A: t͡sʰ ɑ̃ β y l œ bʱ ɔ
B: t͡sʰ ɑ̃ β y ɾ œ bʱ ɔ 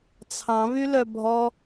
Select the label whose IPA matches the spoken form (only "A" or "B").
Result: A